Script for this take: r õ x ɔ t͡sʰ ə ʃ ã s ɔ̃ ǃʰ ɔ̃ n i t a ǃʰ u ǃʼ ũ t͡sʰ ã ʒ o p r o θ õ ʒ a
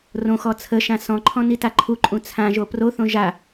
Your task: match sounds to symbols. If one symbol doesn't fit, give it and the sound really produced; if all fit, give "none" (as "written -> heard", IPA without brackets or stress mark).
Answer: none